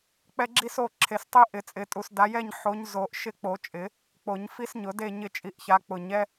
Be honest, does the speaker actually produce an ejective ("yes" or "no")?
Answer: yes